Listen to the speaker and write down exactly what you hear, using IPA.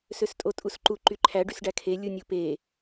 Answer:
s ø s tʼ o tʼ u s ǃ u ǃ y ǃʰ æ ɖ y s ɖ æ kʰ e lʲ u nʲ u p e

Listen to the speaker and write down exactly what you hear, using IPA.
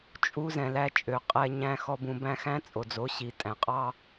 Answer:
t͡ʃʼ u˦ z ɛ̃˨ l æ˧ t͡ʃʼ ø˨ qʼ ɛ˧ ɲ æ̃˧ x ɔ˧ b ũ˨ b æ̃˦ x æ̃˦ t͡sʼ o˨ d͡z o˨˦ ɕ i˨ tʼ æ̃˨ qʼ ɑ˦

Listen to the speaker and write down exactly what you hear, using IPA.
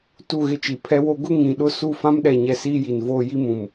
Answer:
t u˦˨ ɣ ɪ˦ t͡ʃ i˨ pʰ ɛ˦ w o˦ ɡ ʊ˦ ŋ ĩ˨ ɗ ʊ˦ s u˦˨ f ã˦ m ɗ ɛ˨ ɲ ɛ˨ s iː˦ j i˨ n v oː˦ j i˦ m ũ˨ m

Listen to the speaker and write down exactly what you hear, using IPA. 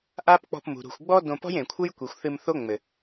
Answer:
ʔ a˦ p k͡p ɔ̤˧ p m ṳ˨ ɾ ṳ˨ xʷ ɡ͡b ɔ˦ d õ˧ p ɔ̤˦ j ẽ˨ kʷʰ ɘ˦ j kʷ i˨ xʷ θ ɨ˧ m θ o˦ ŋ͡m ɘ˨

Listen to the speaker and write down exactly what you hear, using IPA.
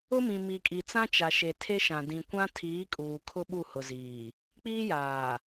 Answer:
ʊ˦ m ĩ˨ m i˨ kʼ i˨ t͡s ã˦ t͡ʃ a˨ ʃ e˨ tʰ e˦ ʃ ã˨ d ĩ˨ kʷ ã˦ tʰ iː˨˦ kʼ uː˨ kʰ ʊ˦ ɓ u˦˨ h ʊ˨ z iː˨ | k͡p iː˦ j aː˨

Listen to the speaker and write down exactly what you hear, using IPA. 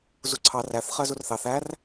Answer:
z u ǀʰ ɑ r æ θ χ ɜ z u r θ ɑ θ æ r

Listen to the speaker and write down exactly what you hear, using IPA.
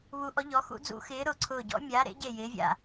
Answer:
β u˧˥ ʔ ɔ˧˥ ʎ ɔ˧˥ x ṵ˧˥ d͡z ṵ˧˥ x ɪː˧˥ ɾ ʊː˦˨ ǀʰ ʊː˦˨ ɟ ɔ̰˧˥ mʲ aː˧˥ ɾ ḛ˧˥ ɟ e˦˨ j ɪː˧˥ vʲ a̰˦˨

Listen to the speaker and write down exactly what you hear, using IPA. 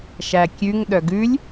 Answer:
ʃ æ kʲ ʉ ŋ ɗ œ ɡ ʉ lʲ

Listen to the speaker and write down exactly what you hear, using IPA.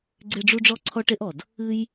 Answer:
ɡ͡ǀ e˥ ɖ͡ʐ u˥ ɖ͡ʐ ɔ˥ ǀʰ ɔ˥ ʈ e˥ ʔ ɔ˩ d | ɨ˥ j

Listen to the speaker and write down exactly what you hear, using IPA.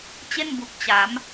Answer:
t͡ɕ e˥˩ n b u˨˩ k̚ t͡ɕ a˩˦ m

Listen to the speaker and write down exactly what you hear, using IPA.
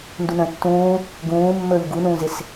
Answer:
n d u n ə̃ː tː ũː | ɡ ũː mː ɵː ʎ ɡ u n ũː z ɪ s

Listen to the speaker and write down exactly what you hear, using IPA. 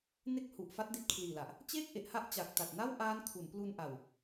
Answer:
n e˥˩ k̚ h u˨˩ ʔ f a˦˥ t̚ d i˦˥ t̚ kʰ l iː˨˩ l a˨˩ ʔ | t͡ɕ eː˥˩ k̚ ʔ e˨˩ ʔ h a˥˩ ʔ t͡ɕ a˨˩ k̚ t a˨˩ t̚ n a˥˩ w ʔ aː˦˥ n kʰ u˩˦ n p l u˧ n ʔ a˨˩ w

